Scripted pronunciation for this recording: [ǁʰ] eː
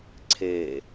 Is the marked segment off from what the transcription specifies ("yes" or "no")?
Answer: yes